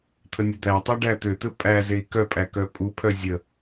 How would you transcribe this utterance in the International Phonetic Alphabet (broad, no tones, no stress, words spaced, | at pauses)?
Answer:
t̪ʰənʲud̪ætˤæ ɖæt̪øt̪ɘ pʼæ zei̯kœpʼæ kœpʼupʰœ zʲə